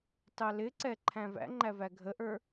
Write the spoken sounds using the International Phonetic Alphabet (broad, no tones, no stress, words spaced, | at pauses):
tɑlɪǀɛ ǃʰæ̃væ̰ŋ͡ǃæ væɡʱəʔə˞